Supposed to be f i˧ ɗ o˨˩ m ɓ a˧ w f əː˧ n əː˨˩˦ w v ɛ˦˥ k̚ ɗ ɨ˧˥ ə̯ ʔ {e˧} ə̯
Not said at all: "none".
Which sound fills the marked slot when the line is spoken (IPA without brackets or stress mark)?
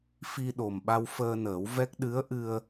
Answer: ɨ˧